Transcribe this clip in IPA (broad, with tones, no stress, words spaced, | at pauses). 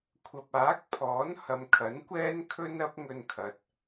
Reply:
kʷʰɐ˨p̚aː˨˥k̚pʰɔː˨˥n hɐ˨mkʰɐ˨˥nkʷɛː˥nkʰɵ˥n ɐ˥p̚ŋɵ˧nkʰɐ˨t̚